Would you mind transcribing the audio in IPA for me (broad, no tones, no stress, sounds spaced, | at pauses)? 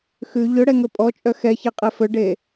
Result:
x ʉ ʎ ɵ ɽ ɛ ŋ ɵ pʼ ɔ t͡ʃʼ œ x ɛ ç ɛ qʼ ɛ f ɵ ɖ e